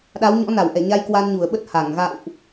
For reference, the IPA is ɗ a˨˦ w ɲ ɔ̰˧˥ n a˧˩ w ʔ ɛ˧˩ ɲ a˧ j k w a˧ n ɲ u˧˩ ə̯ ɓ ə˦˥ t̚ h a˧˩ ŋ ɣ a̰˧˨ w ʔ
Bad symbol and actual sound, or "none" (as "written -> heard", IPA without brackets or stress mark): none